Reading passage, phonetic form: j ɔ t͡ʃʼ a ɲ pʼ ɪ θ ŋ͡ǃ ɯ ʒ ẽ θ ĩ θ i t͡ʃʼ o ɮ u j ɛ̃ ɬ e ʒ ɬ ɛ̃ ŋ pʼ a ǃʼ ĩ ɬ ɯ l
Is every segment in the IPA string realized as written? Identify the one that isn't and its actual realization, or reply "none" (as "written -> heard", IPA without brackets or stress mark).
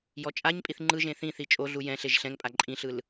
ɪ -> i